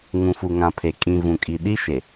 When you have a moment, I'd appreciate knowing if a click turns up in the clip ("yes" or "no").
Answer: no